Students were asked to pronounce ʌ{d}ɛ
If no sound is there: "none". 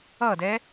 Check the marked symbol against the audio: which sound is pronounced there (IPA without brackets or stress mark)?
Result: d